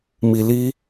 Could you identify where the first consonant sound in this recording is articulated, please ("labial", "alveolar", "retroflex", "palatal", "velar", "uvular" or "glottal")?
labial